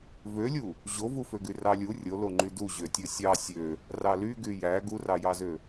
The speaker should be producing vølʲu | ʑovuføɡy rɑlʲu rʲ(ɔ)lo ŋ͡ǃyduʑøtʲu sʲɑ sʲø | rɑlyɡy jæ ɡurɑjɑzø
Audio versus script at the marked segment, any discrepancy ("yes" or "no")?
yes